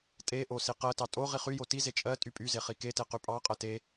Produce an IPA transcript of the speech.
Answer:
tʼ e ʔ o s i q ɜ t ɑ tʼ o ʁ i χ y j o t i z e t͡ʃʼ ɜ tʼ y pʼ y z e χ i k e t e q y pʼ ɑ qʼ ɜ t e

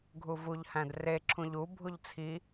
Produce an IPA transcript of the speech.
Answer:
ɡʱ u v u ʎ h æ̃ d r e ǁʰ ũ ʎ u bʱ u ʎ t͡sʰ i

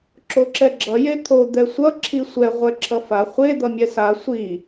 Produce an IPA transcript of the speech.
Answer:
ǁ o ǁ ɛ ɡ͡ǁ ʌ j e t̪ʰ o d̪ ɛ sʷ ʌ ǁʰ i sʷ ɛ ʁʷ ɛ ǁʰ ʌ f a χʷ e d̪ ʌ mʲ ɛ s a sʷ i

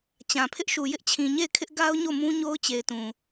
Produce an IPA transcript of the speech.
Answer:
t͡ɕ ã˨ pʰ ɪ˦ ʔ ʃ u˨ j ɪ˦ ʔ t͡ɕʰ ĩ˨ ɲ e˦˨ ɪ̯ kʰ ɪ˦ ʔ ɡ a˦ ʊ̯ ɲ o˦˨ m ũ˦ ɲ o˦ ʊ̯ t͡ɕ e˨ ɪ̯ t ũ˨

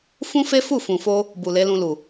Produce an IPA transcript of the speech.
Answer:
f ũ˦ f e˦ f u˦˨ f ũ˨ f o˧ | b u˨ l e˨˦ l ũ˧ l u˨

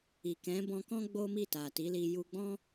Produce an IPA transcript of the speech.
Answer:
i˨ k ɛ̃˨˦ b ɔ̃˧ k ɔ̃˦ ɡ͡b o˦ m i˦˨ t a˨ t i˨˦ l i˧ j u˧ ɡ͡b ɔ̃˦

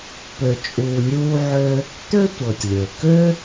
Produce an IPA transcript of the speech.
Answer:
p ø˧ t͡ʃʼ uː˧ nʲ uː˥ ʕ ø˥ | t̪ ø˥ tʷ ɤ˩ tʲ lʲ ø˩ k ø˥

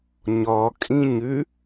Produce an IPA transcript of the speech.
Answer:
ɲ ɔ kʼ ĩ ɲ ʉ

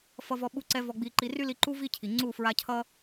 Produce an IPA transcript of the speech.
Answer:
f ʌ˧ v ɔ˧ ɓ u˧ ǀ ɛ˧ v ɔ˧ ɡ͡b i˧ ǃ i˧ r y˦ l i˧ ǃ u˦ v i˦ cʰ i˨ ŋ͡ǀ u˦˨ f ɹ a˧ cʰ ʌ˦

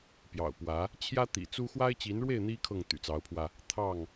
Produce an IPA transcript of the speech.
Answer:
p j ɑ̰˨˩ ʊ̯ p w ä˨˦ | t͡ɕʰ j ä˦ t̪ ḭ˨˩ t͡s u˦ x w a˦ ɪ̯ t͡ɕ i˨˦ n ɻ w e˥˨ ɪ̯ n̪ i˦ kʰ ɤ˥˨ ŋ t̪ y̰˨˩ t͡s ɑ˨˦ ʊ̯ pʰ w ä˧ | t̪ʰ ɑ˥˨ ŋ

